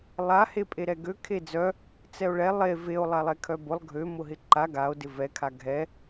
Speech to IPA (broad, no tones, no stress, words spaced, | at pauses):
lˠa hepʼeɾɛɡø kʰed͡zœ | t͡sɛo̯ɭɛ lˠe veo̯ lˠalˠɛkʰœbʊlˠ ɡʱø mʊɦɪǃa ɡao̯ dɪvɛ kʰaɡʱɛ